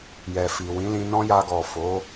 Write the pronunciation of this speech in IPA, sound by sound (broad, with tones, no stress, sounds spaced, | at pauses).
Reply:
j ɛ˨ f i˨ w ĩ˨˦ l ĩ˧ n ɔ̃˦ j a˧ ɡ ɔ˨ f o˨˦